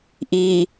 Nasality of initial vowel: oral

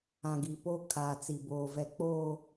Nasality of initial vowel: nasal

